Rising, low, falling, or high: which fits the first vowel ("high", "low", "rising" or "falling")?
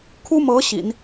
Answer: high